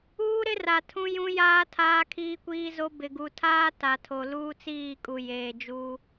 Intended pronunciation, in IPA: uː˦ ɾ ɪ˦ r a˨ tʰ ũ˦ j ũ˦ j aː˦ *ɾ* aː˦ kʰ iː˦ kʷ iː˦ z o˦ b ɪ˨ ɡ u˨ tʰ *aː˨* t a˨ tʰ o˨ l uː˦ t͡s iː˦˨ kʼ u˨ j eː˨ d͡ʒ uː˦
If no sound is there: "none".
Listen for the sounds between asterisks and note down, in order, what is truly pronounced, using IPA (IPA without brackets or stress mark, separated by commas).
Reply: tʰ, aː˦